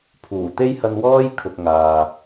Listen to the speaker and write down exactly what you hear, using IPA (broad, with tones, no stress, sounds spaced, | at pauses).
pʰ uː˨˩ t̪ e˥ j h ɐ˧ n w ɔː˥ j kʰ ʊ˨ k̚ ŋ aː˨